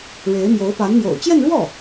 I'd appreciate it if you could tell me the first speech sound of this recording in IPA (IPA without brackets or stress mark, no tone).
ɻ